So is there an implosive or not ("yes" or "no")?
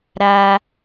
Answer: no